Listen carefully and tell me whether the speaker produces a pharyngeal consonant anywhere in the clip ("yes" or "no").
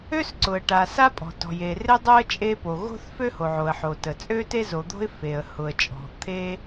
yes